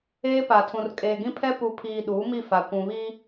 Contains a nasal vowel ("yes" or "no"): yes